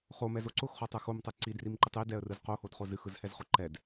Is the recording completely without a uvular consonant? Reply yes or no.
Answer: no